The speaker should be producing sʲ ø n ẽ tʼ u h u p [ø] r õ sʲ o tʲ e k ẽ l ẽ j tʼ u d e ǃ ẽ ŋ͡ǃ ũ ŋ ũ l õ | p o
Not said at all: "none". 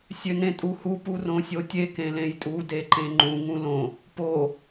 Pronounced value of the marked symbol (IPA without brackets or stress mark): u